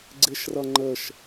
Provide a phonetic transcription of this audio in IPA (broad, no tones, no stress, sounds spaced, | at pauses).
ɡ͡ǀ ɪ ʃ r ʌ ŋ͡ǃ ə ʃ